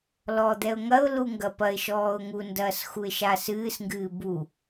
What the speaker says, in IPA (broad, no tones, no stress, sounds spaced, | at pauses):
l ɔ d̪ ɛ ʊ̯ ŋ ɐ ʊ̯ l u ŋ ɡ ɐ p ɐ ɪ̯ ʃ ɔː ʊ̯ ŋ u n d ɐː s x u ɪ̯ ʃ a s ɨː s ŋ ɡ ɨː b u